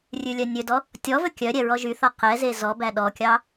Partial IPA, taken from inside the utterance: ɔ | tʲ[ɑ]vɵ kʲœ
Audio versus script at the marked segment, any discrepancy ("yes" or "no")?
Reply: yes